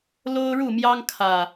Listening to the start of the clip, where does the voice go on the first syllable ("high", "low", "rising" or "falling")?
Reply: high